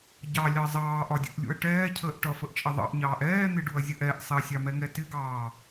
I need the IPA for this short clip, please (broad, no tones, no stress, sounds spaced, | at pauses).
ɟ ɑ lʲ ɑ zˤ ɑː ʔ ɒ dʲ ṵ ʔ lʲ ṵ ɐ̯ ʈ ɛː cʰ əː ʔ ʈ ʌ f ə ʔ t͡ʃʼ ə ðˤ ɑ̰ ʔ ɲ ɑː ʔ ɛː n̪ ɪ ɖ u ɐ̯ zʲ ə ʔ ɛ ʔ sˤ ɪ ɐ̯ sʲ ɑ m ɛ ŋ ɛ t ɪ ɡ ɑː